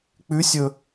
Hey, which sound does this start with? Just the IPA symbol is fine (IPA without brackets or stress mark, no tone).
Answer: k͡p